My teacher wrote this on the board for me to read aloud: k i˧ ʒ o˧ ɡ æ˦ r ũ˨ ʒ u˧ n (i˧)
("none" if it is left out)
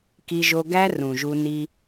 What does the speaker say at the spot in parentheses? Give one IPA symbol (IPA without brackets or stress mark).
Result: i˧